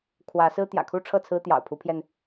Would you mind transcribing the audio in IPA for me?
kʰwä˨˦sɹ̩˦ t̪jä̰˨˩kʰu˥˨ʈ͡ʂʰɤ˥˨ t͡sʰɹ̩˦t̪jɑ̰˨˩ʊ̯pʰu˨˦pʰjɛ˧n

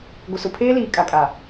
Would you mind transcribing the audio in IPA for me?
ɡʷɪ˨sʊ˨pʰeː˦ liː˨kʼa˨kʼa˨

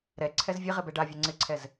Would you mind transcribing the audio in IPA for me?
ɾɛǀʰɛz vʲeʁɪbɛ ɖavʲɛ ŋ͡ǀɪǀʰɛz

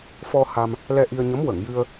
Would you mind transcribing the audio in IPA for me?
fɔ˧ ha˧m | lɛ˧ʔi˧ə̯ɲə˧˥m wə˨˩˨ŋjɨ˧ə̯

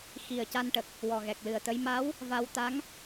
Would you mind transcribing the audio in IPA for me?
xi˨˩ə̯ ca˧nʈə˨˩k̚ | wɔ˨˩ɣɛ˨˩k̚lɨ˨˩ə̯t̪ə˧˥j ma˧˥w | va˧wt̪a˧˥ŋ

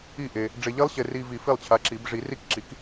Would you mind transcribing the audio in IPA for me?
i˥˩ʔe˧ | ɖ͡ʐe˧ʎi˦˥lˠɕe˧ ri˧vi˨˩˦f i˥˩lˠt͡ɕʰa˨˥ ǁi˨˩˦b ʐi˨˩˦ ri˦˥kǁi˨˥k

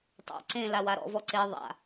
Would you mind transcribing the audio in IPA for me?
tˤa̰ ǀẽ lawaɾɔ̰vɔ ǀe ðˤa̰

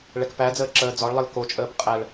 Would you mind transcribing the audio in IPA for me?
ɭɛkpæd͡zəː ǁəːd͡zɒɭlˠəl kot͡ʃʼəːp qʼæɭ

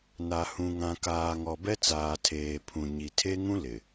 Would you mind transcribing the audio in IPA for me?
na˨hũ˨ŋã˨kaː˨ ŋɔ˨bɛ˦t͡saː˨tʰeː˨ pʰũ˨ɲi˨ tʰe˦ŋũ˦ lɪ˨

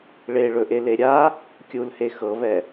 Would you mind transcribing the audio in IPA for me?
ɭeɭɵʔele ɾʲa | kʲulhe xɤβɛ

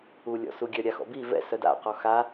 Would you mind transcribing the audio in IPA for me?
ulʲɔ̰suɡʲœ ɾʲaxɔ̰bi vɛ̰ sœda̰qɔ xa

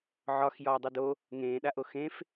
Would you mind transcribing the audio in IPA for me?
ʕɒx jɒːdˤudo | ŋẽːɗaʔo xẽf

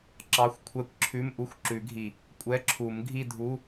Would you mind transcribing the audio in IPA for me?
ǁɑ˧˥˧xʷkʷʰɛ˧˥˧kʷǁʰʉ˧˥˧m ʔu˧˥˧xʷǁʉ˨˩˦ɡʱi˨˩ | kʷʼɛ˧˥˧ǁʰu˨˩˦mɡʱi˥˧dʱu˧˥˧

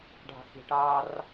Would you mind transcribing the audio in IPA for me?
ɖʱɑ̤xi̤ʈɑːr

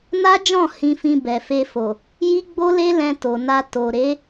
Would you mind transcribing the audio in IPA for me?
na˦d͡ʒɔ̃˦˨ hĩ˧fĩ˧ bɛ˨fe˧fo˨ | ji˦ɡ͡bo˦le˦ lɛ̃˧ to˨na˧ to˨ ɾe˨˦

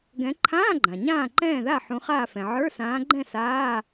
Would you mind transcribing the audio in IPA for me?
ɡɛ̃˨˦ ǃʰãː˧˥˧ɡ͡ǃã˩ ɲãː˥˨ǃɛ̃ː˥˨ða˥˨ ħũ˨˦χaː˥˨fɛ̃˩ ʕə˞˧˥˧sãː˨˦ɡ͡ǃɛ̃˥˨ saː˧˥˧

